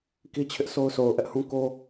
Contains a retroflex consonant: no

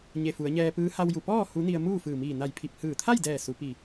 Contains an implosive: no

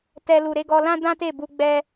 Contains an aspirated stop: no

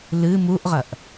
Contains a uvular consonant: yes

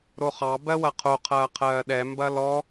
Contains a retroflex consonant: no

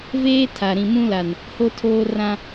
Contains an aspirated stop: yes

